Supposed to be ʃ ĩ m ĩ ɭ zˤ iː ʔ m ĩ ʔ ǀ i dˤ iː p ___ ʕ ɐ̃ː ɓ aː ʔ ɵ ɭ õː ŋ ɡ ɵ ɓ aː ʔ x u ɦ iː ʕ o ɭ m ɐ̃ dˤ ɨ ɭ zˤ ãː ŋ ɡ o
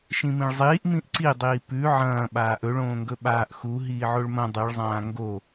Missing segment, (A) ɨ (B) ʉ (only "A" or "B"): B